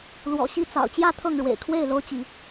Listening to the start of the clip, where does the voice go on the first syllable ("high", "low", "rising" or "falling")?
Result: low